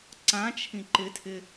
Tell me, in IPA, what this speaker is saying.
ǀ ã t͡ʃʰ ĩ ǃ ɪ tʰ ɪ

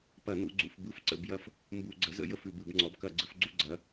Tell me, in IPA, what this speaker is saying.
p ɐ˧˩˧ n ṵ˩˧ ɡ͡ǀ ṵ˩˧ f b ɯ˥˨ f ǀ ə̰˧˩˧ b j ɐ˥˨ f | m b u˧˩˧ ɡ͡ǀ ə˩˥ z ə̰˩˧ j ə˥˨ f ʉ˧˩˧ b ɯ˧˩˧ b ŋ͡ǀ ɔ˩˥ b k ɐ˧˩˧ ɡ͡ǀ ɯ˩˧ f ɡ͡ǀ u˥˨ ɡ͡ǀ ɐ˩˧

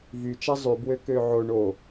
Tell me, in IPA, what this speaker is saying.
v y t͡ʃ a zˤ y b w ø k ø ʕ o ɳ o

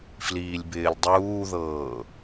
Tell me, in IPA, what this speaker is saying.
f l iː lʲ b ɪː lʲ dˤ uː ð ɤː

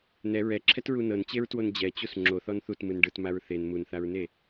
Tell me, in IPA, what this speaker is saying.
n ɛ ɹ ɛ ǁʰ ɛ t ɹ u n ɤ n t͡ɕ e ɹ t w o n d͡ʑ ɛ t͡ɕ u s ŋ͡ǁ o θ ɔ n θ u t m ɯ n ɖ ɯ t m a ɹ θ e n m u n θ a ɹ n e

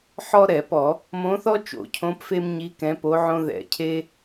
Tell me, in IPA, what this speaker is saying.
ħ ɔ˥ ɾ ɛ˧˩˧ p ɔ˧˩˧ | m õ˧˥ θ ɔ˥ t͡ʃ o̰˧˩˧ cʰ õ˧˥ p f e˥ m ɲ i˧˥ k ɛ̃˧˥ p o˧˥ ʕ õ˥ ð ɛ̰˧˩˧ cʰ e˥

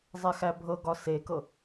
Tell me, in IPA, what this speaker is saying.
zˤ ɛ x æ bʱ ɤ ɡ ɒ s e k ɤ

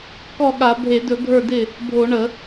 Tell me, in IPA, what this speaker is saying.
k ɔ˥˩ ɠ a˧˩˧ bʱ e˧˩˧ d ɵ˧˩˧ ɡʱ ə˞˥˩ d ɪ˥˩ | bʱ o˧˩˧ ɳ ə˧˩˧

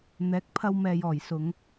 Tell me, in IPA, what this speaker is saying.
n̪ ɛː˨˥ k̚ pʰ ɐ˧ w m ɛː˨ j ɔː˨˩ j s ʊ˨˧ ŋ

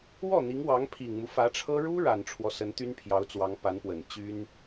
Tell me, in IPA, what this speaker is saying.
w ɔ˥˩ n̪ i˧˥ ŋ w ɑ˧˥ ŋ pʰ i˨˩ ŋ m u˦ f ä˧˥ ʈ͡ʂʰ ɤ˥ ɻ u˥ ɻ a˨˩ n ʈ͡ʂʰ w ɔ˦ s ə˧˥ n t̪ y˥ n pʰ j ɑ˧˥ ʊ̯ t͡s w ɑ˧˥ ŋ p a˧˥ n p w ə˨˩ n t͡ɕ y˥ n

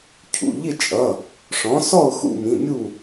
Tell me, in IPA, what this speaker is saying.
cʰ ṵ˩˧˩ ʎ ɪ˥˨ t͡ʃʼ ʌ˩˧˩ | ʂ ɔ̃˩˥ s ɔ˥˨ ʊ̯ x ṵ˥˨ m ĩ˩˧˩ mʲ u˥˨

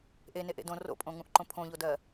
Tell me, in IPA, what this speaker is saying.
ʔ e n e ʔ ḛ d õ r o̰ pʼ õ ŋ ũ ʔ ǃ õ pʰ õ ʎ o d ɜ

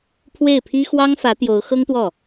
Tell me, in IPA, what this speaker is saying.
pʰ w e˥˩ ɪ̯ pʰ i˥ x w ɑ˥ ŋ f ä˧˥ t̪ j o˧˥ ʊ̯ x ɤ˥ ŋ t̪ w ɔ˥˩

